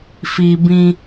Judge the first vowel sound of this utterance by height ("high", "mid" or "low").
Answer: high